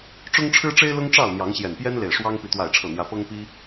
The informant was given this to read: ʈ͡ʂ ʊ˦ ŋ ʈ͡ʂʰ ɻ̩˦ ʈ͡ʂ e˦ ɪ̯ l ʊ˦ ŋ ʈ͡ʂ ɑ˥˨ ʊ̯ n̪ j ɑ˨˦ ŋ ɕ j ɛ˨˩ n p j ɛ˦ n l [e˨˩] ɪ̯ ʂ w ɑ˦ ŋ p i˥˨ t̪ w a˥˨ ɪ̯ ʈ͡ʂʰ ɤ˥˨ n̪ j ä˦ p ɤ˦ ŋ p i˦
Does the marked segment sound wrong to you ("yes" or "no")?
no